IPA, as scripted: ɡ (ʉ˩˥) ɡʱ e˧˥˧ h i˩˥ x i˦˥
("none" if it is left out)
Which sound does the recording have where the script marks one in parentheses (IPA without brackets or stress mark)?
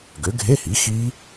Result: ø˩˥